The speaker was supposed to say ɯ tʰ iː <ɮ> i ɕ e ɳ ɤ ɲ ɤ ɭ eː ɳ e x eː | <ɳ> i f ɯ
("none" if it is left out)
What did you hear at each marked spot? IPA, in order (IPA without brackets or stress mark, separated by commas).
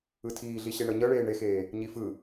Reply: ɮ, ɲ